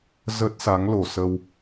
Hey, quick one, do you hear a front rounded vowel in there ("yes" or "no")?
no